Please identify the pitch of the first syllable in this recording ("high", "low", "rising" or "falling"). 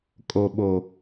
low